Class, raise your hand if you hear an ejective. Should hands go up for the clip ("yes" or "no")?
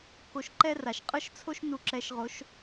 yes